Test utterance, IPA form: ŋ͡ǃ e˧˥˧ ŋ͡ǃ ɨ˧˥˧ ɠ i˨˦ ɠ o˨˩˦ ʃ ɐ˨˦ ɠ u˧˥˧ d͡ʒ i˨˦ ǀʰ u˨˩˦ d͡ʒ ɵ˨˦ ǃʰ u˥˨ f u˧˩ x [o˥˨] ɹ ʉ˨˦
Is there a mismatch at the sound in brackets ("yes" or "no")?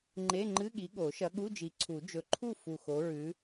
yes